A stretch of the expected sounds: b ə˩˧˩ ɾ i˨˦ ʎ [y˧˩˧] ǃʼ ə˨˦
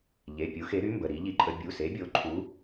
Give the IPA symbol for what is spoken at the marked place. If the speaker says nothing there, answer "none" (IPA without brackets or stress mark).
i˧˩˧